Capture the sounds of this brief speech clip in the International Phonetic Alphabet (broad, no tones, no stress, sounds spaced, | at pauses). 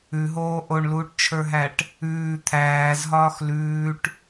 ʉ ɦ oː ʔ o ɳ l uː ʈ t͡ʃʰ ə˞ ɦ æ ʈ | ʉː t̪ʰ æː z ɦ ɒː x l ʉː ʈ